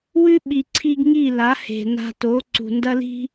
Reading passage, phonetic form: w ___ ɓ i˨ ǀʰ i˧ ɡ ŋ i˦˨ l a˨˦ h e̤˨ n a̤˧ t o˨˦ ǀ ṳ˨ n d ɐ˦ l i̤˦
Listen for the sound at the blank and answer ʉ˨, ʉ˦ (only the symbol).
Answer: ʉ˦